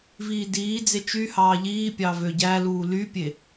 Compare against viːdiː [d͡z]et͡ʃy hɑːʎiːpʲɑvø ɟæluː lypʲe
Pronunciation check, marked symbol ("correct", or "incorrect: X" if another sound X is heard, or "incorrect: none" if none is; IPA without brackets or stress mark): correct